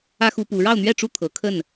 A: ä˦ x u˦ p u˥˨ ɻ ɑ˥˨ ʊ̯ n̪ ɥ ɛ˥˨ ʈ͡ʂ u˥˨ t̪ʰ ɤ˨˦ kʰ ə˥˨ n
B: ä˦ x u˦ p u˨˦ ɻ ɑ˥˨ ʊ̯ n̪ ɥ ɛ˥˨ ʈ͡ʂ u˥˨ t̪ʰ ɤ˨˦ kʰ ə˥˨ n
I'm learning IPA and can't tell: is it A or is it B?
B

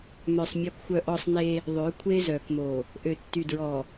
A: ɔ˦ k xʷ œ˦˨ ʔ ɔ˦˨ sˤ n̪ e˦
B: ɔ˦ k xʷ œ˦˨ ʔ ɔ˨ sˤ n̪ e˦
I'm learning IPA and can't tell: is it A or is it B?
A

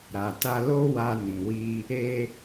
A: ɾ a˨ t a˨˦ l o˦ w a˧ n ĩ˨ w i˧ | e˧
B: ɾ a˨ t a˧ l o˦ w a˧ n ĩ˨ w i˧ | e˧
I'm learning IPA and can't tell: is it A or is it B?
B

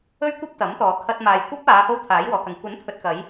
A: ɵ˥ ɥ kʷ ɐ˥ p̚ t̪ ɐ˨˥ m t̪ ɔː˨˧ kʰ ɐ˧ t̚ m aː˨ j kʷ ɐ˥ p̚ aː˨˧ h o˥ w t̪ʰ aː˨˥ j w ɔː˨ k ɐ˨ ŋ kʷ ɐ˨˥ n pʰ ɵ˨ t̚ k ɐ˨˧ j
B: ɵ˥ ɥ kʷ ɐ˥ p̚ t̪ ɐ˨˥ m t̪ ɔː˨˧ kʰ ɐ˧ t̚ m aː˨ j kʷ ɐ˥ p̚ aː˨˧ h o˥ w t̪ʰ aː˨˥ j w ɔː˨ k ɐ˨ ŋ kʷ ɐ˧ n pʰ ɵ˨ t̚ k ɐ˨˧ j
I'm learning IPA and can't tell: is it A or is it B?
A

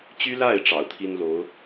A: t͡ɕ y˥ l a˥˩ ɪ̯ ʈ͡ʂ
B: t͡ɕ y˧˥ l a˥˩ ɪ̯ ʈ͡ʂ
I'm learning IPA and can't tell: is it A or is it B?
A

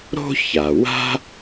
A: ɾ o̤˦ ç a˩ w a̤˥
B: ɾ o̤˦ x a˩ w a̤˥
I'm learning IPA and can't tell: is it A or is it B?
A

